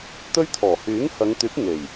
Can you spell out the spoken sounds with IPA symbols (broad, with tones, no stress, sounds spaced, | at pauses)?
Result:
t̪ ɵ˥ ɥ t̪ʰ ɔː˨˩ h yː˨˥ ŋ h ɐ˨˧ ŋ t̪ yː˨˥ p̚ ŋ e˨˩ j